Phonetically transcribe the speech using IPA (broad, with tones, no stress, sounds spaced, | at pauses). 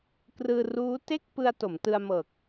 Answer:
k r ɯː˧ r uː˦˥ t e˥˩ k̚ p ɯ˧ a̯ t o˩˦ m t ɯ˧ a̯ m ɤː˨˩ k̚